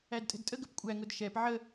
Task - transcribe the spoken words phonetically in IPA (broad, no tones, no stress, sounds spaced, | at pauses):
æ d tʼ ɛ̤ d tʼ ə ɡ ə p kʷʼ æ ŋ ʊ d ʃ ɛ p ʕ ə